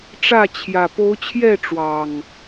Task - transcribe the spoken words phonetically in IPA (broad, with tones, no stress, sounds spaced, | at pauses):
ʈ͡ʂ ä˥˨ t͡ɕʰ j ä˨˩ p o˨˦ ʊ̯ t͡ɕʰ j ɛ˥˨ ʈ͡ʂ w ɑ˨˩ ŋ